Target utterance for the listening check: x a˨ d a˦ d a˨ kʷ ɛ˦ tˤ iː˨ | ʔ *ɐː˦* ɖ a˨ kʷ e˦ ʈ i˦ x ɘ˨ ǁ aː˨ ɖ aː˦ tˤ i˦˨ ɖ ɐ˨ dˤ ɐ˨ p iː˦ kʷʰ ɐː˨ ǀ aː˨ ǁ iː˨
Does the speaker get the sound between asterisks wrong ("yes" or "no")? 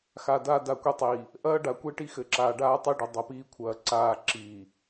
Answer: no